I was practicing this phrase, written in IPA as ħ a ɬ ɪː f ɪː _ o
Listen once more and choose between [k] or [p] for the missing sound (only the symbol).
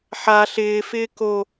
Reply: k